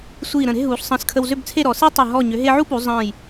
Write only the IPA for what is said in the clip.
sʷiː˧˩ ɾə̃˧˩ɾe̤˥˧ɦuː˩˧ɬ sˤə̃ː˧skʰə˧w zʏ˥˧bt͡sʰe˥˧ɾɔ˩˧ se˥ tˤə˧˩ ɦɔ˧˩ɲʏ˩˧ ɦe˧ʕu˥pu˩˧ zˤə̃ː˧˩j

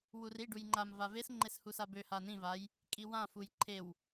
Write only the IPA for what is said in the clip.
wuriɖuj ŋ͡ǃamva vesŋ͡ǃes husabøha nĩvaj | kʼiwãfuj ǃʰew

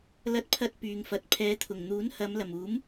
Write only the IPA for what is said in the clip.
lɐ˥t̚pʰɐ˥t̚pyː˨˧ŋfɐ˨t̚ pʰɛː˨˧t̪ʰʊ˨˩ŋ n̪uː˨˥nhɐ˨˧mlɐ˨˩m uː˨˥m

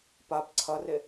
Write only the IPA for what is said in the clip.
pap ǀʰɐre

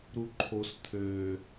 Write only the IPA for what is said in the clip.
ɾuǃʰos t̪ʰø

